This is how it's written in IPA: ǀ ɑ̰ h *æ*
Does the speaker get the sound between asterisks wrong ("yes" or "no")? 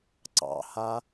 yes